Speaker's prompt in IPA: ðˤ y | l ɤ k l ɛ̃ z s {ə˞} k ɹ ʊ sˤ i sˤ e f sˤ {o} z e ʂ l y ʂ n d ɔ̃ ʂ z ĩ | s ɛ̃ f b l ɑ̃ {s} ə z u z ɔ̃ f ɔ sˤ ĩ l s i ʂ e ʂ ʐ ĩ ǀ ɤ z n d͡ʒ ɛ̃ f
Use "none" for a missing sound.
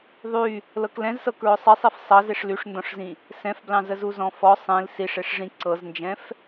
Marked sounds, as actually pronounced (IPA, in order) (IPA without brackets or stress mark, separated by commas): ɤ, ɤ, z